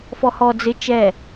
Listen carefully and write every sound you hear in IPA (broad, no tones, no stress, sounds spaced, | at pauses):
f ɔ h ɔ d͡z ɪ t͡ʃ ɛ